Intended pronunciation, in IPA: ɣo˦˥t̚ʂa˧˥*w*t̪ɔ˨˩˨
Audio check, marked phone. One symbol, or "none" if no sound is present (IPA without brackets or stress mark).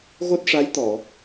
j